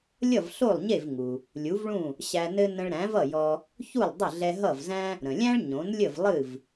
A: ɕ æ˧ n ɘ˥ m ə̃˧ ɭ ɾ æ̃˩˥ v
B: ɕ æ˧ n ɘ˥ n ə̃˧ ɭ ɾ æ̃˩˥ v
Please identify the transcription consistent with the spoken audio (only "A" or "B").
B